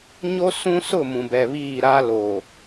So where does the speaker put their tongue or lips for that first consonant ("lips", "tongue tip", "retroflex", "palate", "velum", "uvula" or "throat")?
palate